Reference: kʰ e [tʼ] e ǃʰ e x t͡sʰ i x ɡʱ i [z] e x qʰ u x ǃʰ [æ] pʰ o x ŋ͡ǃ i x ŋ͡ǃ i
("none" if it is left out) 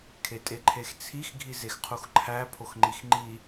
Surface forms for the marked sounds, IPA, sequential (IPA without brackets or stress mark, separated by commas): tʼ, z, æ